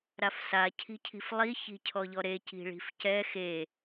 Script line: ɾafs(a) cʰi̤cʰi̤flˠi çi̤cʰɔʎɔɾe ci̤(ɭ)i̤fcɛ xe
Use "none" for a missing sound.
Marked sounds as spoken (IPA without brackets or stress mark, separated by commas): a, ɭ